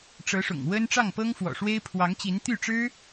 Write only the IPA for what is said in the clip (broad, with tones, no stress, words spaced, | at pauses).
ʈ͡ʂɤ˧˥ʂʊ̰˨˩ŋ wə˥n ʈ͡ʂɑ˥˩ŋpɤ˥ŋfwɔ̰˨˩ʂwe˥ɪ̯ pʰwɑ˧˥ŋt͡ɕi˧˥n t̪y˥˩ʈ͡ʂɻ̩˥